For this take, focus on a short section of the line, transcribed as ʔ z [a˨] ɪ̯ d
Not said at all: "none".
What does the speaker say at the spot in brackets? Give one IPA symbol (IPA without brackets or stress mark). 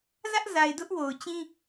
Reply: a˨